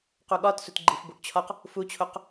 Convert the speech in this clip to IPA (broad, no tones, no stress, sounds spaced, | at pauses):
q u ɠ ɒ t s u t ɡ͡ǃ i f b u ʔ t͡ɕʰ ɒ q | f u t͡ɕʰ o q